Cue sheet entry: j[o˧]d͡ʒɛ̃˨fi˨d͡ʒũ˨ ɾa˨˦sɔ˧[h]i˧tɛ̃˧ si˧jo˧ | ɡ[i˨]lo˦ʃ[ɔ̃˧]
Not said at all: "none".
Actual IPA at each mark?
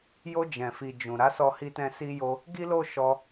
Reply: o˧, h, i˦, ɔ˧

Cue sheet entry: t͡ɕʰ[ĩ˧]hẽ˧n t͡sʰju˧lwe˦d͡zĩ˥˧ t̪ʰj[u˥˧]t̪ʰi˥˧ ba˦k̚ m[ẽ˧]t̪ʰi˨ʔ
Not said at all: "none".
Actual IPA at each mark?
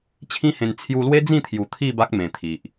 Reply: ĩ˦, u˨˩, ẽ˨˩

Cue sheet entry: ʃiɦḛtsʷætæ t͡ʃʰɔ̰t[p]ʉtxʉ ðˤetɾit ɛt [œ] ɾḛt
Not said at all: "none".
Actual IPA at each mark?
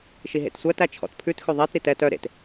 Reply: pʰ, œ

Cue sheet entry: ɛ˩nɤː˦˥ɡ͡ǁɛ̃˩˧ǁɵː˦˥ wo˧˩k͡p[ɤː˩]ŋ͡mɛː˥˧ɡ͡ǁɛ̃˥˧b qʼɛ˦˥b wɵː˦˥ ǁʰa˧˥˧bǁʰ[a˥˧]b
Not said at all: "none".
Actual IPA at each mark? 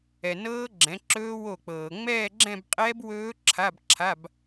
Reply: ɤː˩, a˧˥˧

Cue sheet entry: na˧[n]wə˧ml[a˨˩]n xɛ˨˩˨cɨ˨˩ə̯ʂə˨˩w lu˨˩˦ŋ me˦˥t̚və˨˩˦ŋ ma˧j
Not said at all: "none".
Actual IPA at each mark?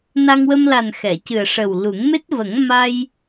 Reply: ŋ, a˨˩

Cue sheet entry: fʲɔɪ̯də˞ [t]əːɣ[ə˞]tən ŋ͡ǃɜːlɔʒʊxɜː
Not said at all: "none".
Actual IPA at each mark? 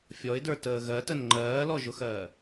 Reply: t, ɜ

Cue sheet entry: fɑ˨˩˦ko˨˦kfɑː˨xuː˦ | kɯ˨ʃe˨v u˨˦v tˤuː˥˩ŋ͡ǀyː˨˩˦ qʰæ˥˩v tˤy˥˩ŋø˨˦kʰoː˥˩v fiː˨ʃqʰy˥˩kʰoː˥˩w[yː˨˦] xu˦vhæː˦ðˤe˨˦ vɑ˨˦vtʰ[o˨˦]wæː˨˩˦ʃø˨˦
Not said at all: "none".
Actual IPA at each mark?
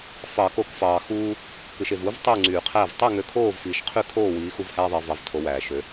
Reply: iː˨˦, o˨˦

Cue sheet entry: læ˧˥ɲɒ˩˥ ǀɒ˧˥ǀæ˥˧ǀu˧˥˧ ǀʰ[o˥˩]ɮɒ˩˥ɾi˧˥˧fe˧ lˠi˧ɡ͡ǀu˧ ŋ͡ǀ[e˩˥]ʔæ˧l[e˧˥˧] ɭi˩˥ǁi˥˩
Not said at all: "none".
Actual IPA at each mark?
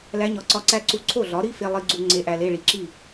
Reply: o˥˩, e˧˥, e˧˥˧

